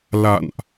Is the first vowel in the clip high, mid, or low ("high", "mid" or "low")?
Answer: low